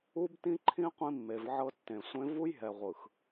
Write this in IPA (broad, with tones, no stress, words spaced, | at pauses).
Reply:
u˦btĩ˦ǃʰĩ˦ qʷĩ˦mːe˨vʕɤ˦ tːẽ˨sʷẽ˦ vu˦jɦɛ˨ʁʷɯ˨x